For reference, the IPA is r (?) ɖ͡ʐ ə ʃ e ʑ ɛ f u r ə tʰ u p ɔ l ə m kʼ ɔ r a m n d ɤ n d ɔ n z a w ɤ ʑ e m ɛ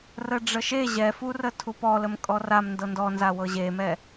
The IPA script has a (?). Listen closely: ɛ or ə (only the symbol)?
ə